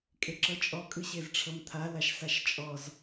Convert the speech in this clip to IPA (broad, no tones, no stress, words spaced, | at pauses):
kʼeǁɤt͡ʃʼɔ kʼɯɕezʈ͡ʂʰɤmt̪ʰa laʃsaʃt͡ʃʼɔz